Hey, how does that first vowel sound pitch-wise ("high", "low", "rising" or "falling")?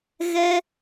high